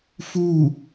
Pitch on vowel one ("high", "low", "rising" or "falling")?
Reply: falling